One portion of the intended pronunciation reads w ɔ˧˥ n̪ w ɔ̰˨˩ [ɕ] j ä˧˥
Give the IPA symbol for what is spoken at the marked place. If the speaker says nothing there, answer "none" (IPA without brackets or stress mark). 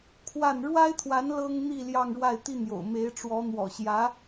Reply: ɕ